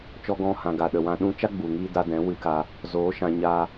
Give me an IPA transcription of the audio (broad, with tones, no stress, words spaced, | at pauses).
t͡ʃɔ˧ɡɔ̃˧hã˨ɡa˨ ɗə˨wã˧ ɗũ˧t͡ʃa˦ ɡ͡bu˨ŋiː˧da˧dɛ̃˨˦ wɨ˧ka˧ | zoː˨˦ʃã˧ ɲaː˧